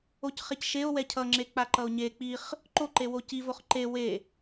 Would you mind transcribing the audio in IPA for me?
o c χ e c ʃ e o̯ w ɛ cʰ ʌ ŋ͡ǁ e k͡p a ǃ ʌ o̯ ɲ e k͡p i χ | ǃ o ǃ e w o c i v o χ ǃ e w e

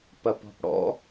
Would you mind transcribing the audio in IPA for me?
p ɐ p ɔ̤ p ɽ ɔ̰

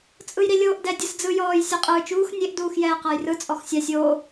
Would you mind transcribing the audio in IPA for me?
t͡sʼ ɯ j ɾ i lʲ oː ʔ d ɛ dʲ ɯ s d͡z ɯ j ɔː j sʲ ɤ qʼ ɯː t͡ʃ uː x nʲ e ʔ d uː x j ɛː q a j r ɯ t͡sʼ ɔ x sʲ a sʲ oː

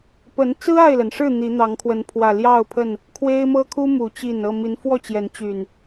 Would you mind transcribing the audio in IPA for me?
p ə˨˦ n t͡s ɹ̩˦ a˥˨ ɪ̯ l ə˩ n ʂ ɻ̩˥˨ n̪ i˨˦ n̪ ɑ˨˦ ŋ kʰ w ə˨˦ n pʰ w ä˨˩ l j ɑ˥˨ ʊ̯ pʰ ə˥˨ n | kʰ w e˦ ɪ̯ m ɤ˦ kʰ u˦ m u˨˩ t͡ɕ i˥˨ n ɤ˥˨ m i˨˦ n f w ɔ˥˨ t͡ɕ j ɛ˨˦ n t͡ɕ y˨˩ n

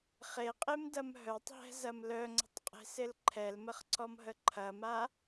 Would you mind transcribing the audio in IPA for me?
χ e qʼ e m d ɐ m ɦ œ tˤ ɦ ɛ̤ z ɐ m l œ ŋ͡ǀ ə̤ tˤ qʼ e̤ s ɪ l ǃʰ ɛ l m ə χ ǀ ɔ m ɦ ə ǃʰ ɐ m a

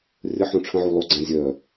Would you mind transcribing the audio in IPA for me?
rʲ ə ħ õ ʈ͡ʂʰ ə̃ ʕ u lˠ o ɡ͡ǀ ã zʲ œ

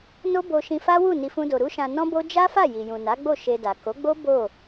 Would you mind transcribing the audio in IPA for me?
n o˦ b o˧ ʃ ĩ˧ f a˦ w u˦˨ n i˧ f ũ˦ d o˧ ɾ u˦ ʃ ã˧ n ɔ̃˦ b o˦ d͡ʒ a˦ f a˦˨ j i˨ j ũ˨ n a˨˦ ɡ͡b o˦˨ ʃ e˧ d a˨ k o˨˦ ɡ͡b o˦ b o˦˨

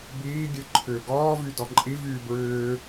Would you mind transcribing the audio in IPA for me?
b iː ɡʲ ɨ ǃʰ ʏː ɡ ɔː v y d ɔ ǃʼ i v yː b ɹ ʏː

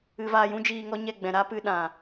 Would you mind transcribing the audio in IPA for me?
ɨ˧ v aː˧ j ũ˦ d͡ʒ iː˧ ŋ ɔ˦ ɲ ɛ˦˨ ɡ͡b ɛ̃˨ ɾ a˦ p ɨ˧ ɗ ã˨

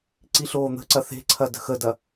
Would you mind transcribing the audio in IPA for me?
ǀ i ɬ oː n̪ ə̤ ǀ ɐ θ e̤ ǀʰ ɐ d ə̤ x ə d ɐ

